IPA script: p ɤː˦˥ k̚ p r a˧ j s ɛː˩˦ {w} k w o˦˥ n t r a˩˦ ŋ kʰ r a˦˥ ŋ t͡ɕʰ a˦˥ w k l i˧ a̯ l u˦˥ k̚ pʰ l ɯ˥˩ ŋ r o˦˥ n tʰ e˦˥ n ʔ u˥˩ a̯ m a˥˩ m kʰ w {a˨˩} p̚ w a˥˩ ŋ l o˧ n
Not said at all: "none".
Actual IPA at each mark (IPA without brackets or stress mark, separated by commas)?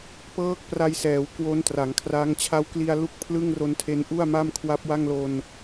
w, a˦˥